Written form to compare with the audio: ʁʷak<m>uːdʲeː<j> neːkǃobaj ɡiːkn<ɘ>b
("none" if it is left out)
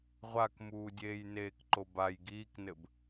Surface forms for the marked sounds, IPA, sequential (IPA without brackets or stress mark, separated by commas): m, j, ɘ